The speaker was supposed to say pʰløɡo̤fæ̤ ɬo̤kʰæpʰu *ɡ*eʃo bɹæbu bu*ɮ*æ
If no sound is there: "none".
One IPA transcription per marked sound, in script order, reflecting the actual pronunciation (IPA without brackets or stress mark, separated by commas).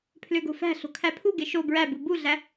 ɡ, ɮ